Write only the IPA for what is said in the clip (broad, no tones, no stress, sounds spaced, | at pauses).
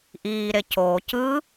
ʔ iː ɾ e c oː c ɯ